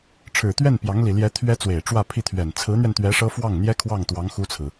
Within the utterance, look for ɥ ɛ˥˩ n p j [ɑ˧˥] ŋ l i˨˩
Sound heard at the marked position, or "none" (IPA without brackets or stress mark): ɑ˧˥